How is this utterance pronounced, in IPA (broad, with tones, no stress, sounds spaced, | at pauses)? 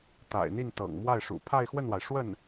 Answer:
t̪ a̰˨˩ ɪ̯ n̪ i˥˩ n t̪ ɤ̰˨˩ ŋ m w a˥˩ ɪ̯ ʂ ṵ˨˩ pʰ a˥˧ ɪ̯ x w ə˥˩ n w a˩ ɪ̯ ʂ w ə˥˩ n